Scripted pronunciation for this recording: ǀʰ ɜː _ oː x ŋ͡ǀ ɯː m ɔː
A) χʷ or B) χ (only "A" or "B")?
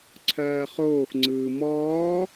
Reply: B